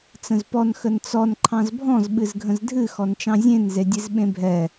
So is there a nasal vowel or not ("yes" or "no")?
yes